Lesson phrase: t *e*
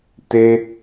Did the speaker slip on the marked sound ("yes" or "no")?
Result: no